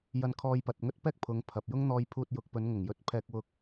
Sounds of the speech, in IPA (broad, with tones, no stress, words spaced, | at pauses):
jɐ˧nkʰɔː˧jpɐ˨t̚ ŋɵ˥t̚pɛː˥k̚ pʰʊ˨˧ŋpʰɐ˨p̚jʊ˥ŋ n̪ɔː˧jpʰuː˧t̚jʊ˨˥k̚pɵ˨˧n ŋʊ˨˩ŋjɵ˧t̚pʰɛː˧k̚wʊ˧k̚